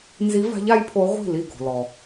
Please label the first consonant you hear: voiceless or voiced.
voiced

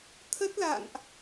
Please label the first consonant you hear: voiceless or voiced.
voiceless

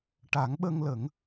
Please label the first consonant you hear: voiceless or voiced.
voiceless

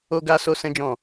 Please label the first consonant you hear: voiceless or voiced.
voiced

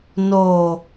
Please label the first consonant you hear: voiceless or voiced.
voiced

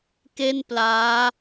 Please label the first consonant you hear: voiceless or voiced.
voiceless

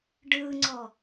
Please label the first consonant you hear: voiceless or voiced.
voiced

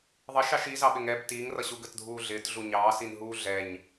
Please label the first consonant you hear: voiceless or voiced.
voiced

